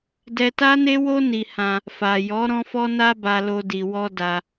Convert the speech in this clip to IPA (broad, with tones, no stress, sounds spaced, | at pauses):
d ɛ˧ t a˦ n e˦ w o˦ n i˧ h ã˧ | f a˨ j ɔ˨˦ ɾ ɔ̃˦ f ɔ˦ n a˦ b a˧ l o˧ d i˧ w ɔ˦ d a˧